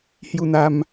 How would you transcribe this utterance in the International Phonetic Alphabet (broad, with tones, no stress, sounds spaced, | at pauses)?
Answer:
h j u˧ n̪ a˧ m